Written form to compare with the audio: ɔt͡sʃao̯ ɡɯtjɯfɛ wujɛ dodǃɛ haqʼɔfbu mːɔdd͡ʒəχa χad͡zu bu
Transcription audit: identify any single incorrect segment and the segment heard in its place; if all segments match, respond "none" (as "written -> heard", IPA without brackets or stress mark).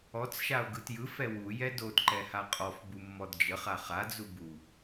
none